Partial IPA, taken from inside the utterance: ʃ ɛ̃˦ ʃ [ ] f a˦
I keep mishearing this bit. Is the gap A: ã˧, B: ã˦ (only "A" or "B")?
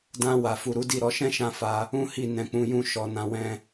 B